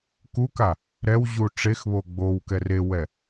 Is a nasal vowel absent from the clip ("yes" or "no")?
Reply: yes